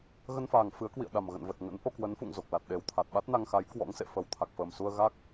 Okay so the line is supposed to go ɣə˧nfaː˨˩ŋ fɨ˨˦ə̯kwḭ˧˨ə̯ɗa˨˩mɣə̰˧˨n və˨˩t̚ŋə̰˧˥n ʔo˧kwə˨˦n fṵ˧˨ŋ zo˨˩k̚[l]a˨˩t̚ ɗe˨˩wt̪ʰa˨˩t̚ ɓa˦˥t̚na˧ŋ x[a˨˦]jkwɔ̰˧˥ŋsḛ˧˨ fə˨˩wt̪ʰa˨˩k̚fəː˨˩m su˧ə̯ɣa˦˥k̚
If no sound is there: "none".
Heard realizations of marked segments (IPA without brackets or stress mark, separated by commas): l, a˨˦